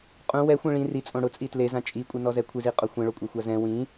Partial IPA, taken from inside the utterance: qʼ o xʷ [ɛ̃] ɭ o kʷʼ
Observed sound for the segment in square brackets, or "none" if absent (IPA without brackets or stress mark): ẽ